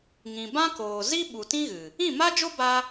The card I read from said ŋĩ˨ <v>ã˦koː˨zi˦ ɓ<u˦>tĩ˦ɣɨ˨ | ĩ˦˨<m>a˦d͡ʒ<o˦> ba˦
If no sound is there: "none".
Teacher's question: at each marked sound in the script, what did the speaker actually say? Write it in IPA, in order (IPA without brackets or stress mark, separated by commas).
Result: b, u˨, m, o˦